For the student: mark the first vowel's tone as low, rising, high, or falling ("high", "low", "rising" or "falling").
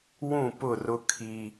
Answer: falling